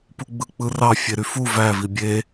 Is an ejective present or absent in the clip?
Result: absent